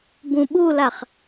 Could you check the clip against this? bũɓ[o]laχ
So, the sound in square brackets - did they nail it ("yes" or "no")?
no